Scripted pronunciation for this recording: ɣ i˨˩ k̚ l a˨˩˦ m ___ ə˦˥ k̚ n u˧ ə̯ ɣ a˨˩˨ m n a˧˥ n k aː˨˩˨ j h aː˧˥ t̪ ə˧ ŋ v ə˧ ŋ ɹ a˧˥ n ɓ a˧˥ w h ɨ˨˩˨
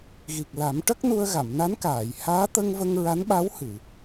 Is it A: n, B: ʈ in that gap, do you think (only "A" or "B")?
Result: B